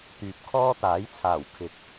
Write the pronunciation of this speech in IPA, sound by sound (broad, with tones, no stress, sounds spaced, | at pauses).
t̪ yː˨ p̚ kʰ ɔː˥ t̪ aː˨˥ j t͡sʰ aː˨˩ w kʰ ɪ˨˥ k̚